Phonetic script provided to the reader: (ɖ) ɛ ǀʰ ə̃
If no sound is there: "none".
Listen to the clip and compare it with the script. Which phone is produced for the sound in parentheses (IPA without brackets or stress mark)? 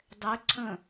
dˤ